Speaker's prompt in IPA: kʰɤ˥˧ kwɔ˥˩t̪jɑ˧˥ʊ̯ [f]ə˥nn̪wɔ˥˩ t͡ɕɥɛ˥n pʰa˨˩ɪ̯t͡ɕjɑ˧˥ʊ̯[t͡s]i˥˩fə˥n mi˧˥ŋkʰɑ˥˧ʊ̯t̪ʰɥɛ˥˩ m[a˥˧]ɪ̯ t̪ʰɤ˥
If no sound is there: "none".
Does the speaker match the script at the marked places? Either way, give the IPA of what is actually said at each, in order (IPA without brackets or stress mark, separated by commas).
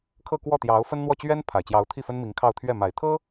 f, t̪ʰ, a˨˩